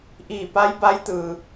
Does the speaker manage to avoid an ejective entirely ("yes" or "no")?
yes